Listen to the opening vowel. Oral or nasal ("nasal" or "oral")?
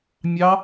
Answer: oral